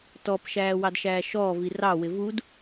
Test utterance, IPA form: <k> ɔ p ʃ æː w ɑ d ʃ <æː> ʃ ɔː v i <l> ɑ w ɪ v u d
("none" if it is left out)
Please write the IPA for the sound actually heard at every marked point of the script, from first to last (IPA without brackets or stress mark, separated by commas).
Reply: t, æː, r